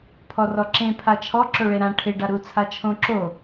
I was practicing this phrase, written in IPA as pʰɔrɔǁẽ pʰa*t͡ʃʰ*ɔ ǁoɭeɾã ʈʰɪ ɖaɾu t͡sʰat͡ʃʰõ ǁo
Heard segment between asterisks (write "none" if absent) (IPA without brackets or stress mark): t͡ʃʰ